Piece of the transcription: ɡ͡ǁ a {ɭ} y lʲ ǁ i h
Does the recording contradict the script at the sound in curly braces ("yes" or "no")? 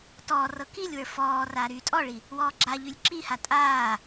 yes